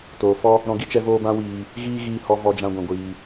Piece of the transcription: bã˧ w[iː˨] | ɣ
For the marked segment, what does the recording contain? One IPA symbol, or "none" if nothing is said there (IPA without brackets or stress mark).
iː˨